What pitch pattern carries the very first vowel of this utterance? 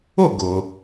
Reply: falling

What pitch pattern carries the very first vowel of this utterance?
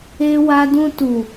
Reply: high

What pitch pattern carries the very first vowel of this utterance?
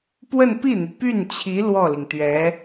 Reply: falling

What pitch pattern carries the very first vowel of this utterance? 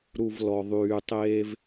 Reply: low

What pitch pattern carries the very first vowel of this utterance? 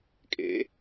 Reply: rising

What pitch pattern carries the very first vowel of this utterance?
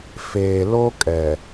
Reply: low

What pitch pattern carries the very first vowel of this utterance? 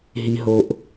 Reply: low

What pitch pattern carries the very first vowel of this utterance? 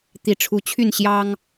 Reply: rising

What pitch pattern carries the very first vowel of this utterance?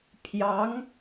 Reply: rising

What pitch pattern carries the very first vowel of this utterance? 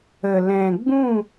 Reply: low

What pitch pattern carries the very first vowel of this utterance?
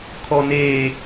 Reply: low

